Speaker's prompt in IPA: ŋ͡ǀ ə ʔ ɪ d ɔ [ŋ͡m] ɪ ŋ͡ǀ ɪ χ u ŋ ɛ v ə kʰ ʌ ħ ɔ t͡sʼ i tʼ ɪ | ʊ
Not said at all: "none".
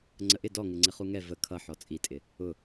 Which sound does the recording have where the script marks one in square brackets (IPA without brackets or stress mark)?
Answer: ŋ